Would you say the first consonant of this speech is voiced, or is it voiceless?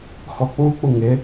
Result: voiceless